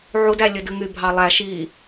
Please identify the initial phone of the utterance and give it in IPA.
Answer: ʕ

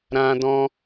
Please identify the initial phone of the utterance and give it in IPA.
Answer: ɾ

